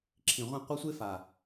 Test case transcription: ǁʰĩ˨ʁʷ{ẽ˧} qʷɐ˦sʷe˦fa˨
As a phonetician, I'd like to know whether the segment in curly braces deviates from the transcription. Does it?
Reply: no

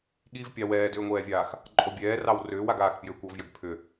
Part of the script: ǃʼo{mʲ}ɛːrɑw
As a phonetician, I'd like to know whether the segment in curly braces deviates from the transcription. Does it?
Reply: yes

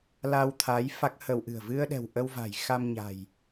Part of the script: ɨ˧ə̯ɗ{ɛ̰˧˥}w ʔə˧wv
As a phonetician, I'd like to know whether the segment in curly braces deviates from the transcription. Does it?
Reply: yes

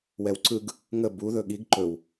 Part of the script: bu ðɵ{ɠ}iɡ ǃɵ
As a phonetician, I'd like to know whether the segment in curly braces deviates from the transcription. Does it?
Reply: no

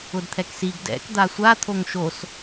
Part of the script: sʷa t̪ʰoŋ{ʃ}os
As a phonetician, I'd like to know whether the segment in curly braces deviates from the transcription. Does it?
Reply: no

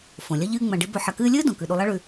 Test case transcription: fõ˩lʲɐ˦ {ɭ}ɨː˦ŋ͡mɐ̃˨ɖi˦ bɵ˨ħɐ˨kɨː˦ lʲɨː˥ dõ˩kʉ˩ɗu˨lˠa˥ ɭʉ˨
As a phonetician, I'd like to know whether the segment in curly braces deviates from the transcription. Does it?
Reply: yes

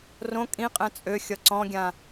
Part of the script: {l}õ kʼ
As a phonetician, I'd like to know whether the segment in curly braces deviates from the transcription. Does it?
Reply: yes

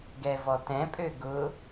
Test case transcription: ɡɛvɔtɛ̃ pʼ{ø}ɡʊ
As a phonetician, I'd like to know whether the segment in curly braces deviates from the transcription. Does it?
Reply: no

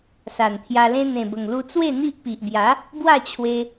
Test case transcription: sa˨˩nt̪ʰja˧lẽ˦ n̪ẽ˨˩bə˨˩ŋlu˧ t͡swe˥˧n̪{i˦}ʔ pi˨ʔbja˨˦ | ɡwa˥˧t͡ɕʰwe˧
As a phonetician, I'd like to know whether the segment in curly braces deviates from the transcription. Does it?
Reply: no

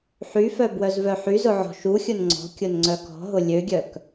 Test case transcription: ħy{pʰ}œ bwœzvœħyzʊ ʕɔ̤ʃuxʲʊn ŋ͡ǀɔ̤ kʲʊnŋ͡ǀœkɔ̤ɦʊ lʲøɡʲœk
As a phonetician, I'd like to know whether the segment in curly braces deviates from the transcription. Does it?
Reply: yes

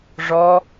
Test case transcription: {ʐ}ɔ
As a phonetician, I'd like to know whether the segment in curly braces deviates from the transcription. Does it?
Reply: no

